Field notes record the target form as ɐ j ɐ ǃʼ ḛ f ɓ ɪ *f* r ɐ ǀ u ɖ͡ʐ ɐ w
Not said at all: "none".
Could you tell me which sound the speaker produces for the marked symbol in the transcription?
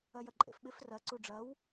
f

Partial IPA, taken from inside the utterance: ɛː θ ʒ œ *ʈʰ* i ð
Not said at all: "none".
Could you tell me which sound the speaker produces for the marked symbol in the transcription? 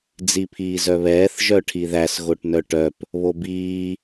ʈʰ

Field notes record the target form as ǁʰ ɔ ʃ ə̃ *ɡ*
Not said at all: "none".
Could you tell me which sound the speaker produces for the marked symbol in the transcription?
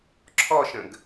ɡ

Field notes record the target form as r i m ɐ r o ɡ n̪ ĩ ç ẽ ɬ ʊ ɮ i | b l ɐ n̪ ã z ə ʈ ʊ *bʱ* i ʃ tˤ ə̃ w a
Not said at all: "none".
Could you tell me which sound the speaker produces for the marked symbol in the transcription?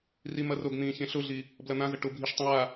bʱ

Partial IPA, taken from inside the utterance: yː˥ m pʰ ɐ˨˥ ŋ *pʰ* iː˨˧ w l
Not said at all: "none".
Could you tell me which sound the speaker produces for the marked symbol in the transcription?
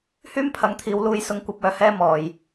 t̪ʰ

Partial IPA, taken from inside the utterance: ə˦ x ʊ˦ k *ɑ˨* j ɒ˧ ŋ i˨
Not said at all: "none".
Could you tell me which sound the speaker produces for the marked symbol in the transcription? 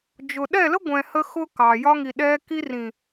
ɑ˨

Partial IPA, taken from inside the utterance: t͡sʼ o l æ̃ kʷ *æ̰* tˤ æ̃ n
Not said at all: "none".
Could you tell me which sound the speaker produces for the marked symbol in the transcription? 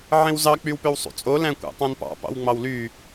æ̰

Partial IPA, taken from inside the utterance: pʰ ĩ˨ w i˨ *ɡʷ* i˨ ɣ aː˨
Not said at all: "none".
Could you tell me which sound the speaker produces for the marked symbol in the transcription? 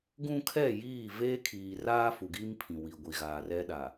ɡʷ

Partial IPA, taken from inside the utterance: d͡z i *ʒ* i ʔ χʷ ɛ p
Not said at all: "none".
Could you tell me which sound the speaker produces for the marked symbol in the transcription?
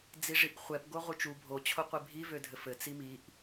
ʐ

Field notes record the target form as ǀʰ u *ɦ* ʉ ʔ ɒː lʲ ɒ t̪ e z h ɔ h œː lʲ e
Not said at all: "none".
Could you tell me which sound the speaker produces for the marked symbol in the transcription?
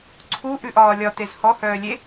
ʔ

